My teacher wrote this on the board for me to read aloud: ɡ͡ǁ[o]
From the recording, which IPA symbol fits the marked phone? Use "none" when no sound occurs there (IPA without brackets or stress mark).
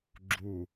u